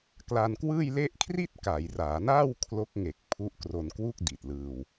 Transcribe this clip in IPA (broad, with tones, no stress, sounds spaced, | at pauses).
k l a˧ n k w ɯː˥˩ j l e˥˩ ʔ kʰ r i˥˩ t̚ k a˩˦ j r aː˩˦ n aː˥˩ w kʰ l o˦˥ k̚ ŋ e˨˩ k̚ pʰ u˦˥ ʔ k r o˧ n k w u˥˩ k̚ d i˨˩ t̚ l ɯː˧ w